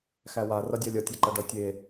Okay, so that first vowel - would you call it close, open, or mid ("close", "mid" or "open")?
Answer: open